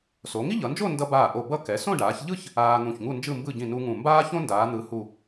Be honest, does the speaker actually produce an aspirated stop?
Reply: no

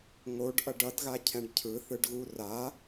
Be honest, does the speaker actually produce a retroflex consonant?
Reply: yes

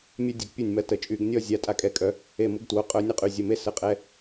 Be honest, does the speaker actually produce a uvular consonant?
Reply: yes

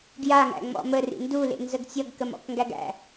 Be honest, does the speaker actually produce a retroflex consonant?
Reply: no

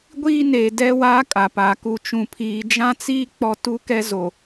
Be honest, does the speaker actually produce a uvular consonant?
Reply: no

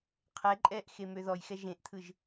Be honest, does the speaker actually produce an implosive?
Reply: no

